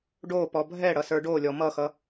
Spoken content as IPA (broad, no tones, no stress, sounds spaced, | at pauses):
ɖ o p ɔ bʱ ɛ ɽ ʌ s ə˞ ɖ o lʲ ɔ m ʌ x ʌ